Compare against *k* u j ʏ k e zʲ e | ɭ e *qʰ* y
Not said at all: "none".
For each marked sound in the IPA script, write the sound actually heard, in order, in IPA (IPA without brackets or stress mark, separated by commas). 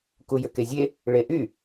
k, ʔ